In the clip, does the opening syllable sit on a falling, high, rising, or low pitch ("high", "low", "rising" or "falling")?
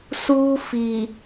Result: high